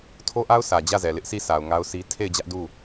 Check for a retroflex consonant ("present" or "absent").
absent